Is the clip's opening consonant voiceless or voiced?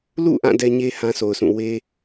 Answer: voiced